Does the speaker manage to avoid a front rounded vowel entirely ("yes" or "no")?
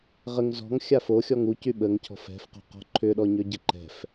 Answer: no